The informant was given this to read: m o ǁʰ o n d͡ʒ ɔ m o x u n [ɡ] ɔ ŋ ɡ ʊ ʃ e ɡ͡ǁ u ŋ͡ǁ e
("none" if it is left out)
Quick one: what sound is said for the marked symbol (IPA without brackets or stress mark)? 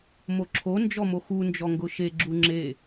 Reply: d͡ʒ